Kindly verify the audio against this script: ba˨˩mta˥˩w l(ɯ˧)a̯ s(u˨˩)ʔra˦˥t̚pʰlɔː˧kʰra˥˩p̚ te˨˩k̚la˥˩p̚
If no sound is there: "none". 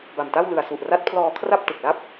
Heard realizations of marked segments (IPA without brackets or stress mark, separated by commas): ɯ˨˩, u˨˩